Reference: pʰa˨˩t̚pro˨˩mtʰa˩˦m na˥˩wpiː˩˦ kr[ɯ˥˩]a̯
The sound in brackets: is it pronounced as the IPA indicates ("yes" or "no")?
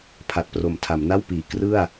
yes